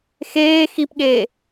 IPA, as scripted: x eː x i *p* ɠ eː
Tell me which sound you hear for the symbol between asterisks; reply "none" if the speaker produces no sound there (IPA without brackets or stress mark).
p